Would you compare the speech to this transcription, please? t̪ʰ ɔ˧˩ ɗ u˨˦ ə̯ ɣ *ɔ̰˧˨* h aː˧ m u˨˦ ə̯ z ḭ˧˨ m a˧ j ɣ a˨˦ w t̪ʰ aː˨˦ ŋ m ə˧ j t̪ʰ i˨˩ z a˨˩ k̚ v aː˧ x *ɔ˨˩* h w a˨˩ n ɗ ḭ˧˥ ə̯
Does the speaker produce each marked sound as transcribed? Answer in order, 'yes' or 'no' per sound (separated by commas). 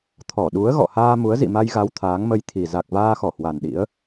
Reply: yes, no